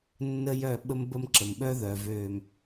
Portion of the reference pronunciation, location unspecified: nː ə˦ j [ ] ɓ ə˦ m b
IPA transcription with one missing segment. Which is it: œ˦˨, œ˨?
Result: œ˦˨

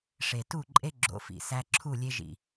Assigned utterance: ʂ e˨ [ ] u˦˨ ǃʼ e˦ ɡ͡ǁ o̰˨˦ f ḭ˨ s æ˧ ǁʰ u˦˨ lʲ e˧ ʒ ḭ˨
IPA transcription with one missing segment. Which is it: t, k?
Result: t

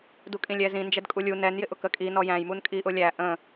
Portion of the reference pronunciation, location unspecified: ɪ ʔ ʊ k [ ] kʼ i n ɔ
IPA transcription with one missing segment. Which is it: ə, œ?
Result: ə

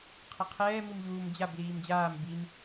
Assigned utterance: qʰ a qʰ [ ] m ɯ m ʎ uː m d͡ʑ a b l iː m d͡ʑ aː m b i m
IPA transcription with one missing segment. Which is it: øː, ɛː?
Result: ɛː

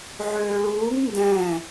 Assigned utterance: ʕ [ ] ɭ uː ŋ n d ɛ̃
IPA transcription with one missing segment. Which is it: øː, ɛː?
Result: øː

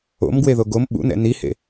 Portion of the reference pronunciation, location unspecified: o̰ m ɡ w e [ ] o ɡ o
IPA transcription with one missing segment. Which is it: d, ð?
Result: ð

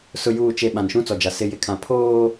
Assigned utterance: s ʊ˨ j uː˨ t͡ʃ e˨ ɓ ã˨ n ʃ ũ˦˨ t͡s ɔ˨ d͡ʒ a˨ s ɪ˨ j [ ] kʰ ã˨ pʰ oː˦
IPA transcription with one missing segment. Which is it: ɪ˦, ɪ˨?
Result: ɪ˨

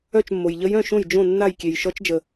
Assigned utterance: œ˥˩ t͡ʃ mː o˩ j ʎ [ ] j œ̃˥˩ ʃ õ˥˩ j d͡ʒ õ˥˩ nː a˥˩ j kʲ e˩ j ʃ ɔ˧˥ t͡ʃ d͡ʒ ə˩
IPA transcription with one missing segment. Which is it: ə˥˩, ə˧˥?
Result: ə˧˥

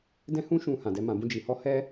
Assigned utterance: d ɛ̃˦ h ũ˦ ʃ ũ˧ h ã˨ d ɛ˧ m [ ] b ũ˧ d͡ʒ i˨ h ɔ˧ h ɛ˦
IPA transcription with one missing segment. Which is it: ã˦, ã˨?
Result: ã˨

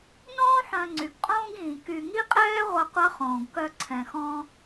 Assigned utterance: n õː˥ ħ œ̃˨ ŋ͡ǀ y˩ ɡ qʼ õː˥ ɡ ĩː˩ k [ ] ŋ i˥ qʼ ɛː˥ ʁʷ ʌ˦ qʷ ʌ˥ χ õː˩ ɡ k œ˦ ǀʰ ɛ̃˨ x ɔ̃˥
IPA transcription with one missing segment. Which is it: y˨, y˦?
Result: y˨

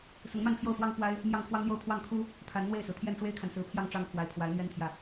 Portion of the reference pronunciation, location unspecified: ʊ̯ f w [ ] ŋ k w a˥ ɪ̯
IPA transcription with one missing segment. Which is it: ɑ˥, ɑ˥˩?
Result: ɑ˥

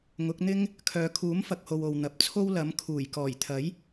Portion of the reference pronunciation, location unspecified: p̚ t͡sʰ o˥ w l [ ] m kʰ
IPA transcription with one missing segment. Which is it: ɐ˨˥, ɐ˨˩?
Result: ɐ˨˥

